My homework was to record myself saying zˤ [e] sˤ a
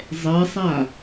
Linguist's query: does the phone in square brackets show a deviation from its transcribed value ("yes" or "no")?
yes